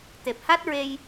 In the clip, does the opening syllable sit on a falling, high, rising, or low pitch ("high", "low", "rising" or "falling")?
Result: low